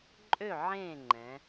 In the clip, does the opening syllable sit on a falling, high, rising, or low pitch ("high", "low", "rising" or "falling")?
falling